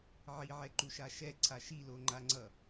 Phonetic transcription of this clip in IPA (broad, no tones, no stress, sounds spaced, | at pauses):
ʕ i ʕ ɛ ǃ u ʃ a ʃ ɛ ǀʰ a ʃ i l o ŋ͡ǃ a ŋ͡ǀ ʌ